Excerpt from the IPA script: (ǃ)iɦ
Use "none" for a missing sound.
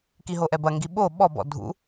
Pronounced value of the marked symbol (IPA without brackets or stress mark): k